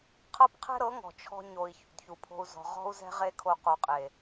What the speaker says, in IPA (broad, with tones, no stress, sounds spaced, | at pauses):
qʰ ɤ˦ p qʰ ɛ̤˦ ɾ ɤ˨˦ ŋ ɔ̤˨ t͡ʃʰ ɔ̤˧ ɲ o˨ i̯ ç ṵ˨ d ç u˨ pʰ o̤˧ u̯ z ɔ̤˨ ʁ ɔ̤˦ u̯ z ɛ̤˦ ʁ e˦ kʰ o˧ q o˨ qʼ e˨